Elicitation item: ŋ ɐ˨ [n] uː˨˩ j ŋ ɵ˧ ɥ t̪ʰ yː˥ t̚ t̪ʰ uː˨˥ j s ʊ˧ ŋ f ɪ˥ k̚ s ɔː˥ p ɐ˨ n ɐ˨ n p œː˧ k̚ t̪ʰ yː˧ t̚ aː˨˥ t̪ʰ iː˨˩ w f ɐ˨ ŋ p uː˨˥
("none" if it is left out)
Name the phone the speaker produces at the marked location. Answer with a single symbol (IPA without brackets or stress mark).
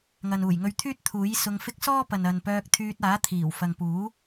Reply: n